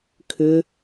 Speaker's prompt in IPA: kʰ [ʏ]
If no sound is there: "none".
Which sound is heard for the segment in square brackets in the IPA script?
ʏ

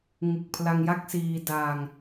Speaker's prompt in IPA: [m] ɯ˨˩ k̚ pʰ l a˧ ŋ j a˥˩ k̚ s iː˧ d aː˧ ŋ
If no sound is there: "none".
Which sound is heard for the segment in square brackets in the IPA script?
ŋ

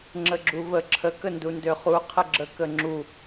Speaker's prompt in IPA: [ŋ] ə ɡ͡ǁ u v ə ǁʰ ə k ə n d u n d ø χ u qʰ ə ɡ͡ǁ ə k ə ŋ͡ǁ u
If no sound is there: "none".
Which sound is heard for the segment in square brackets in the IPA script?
ŋ͡ǁ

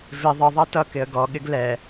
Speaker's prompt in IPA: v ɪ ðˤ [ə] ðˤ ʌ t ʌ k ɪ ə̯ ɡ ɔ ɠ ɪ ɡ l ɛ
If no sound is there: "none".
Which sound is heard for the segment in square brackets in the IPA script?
ə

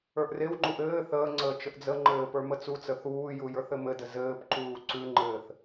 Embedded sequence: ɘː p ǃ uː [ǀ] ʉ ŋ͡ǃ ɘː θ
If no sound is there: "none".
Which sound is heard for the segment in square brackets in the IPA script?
ǀ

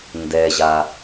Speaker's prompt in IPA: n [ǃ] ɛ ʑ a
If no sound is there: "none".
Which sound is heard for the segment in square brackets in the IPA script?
d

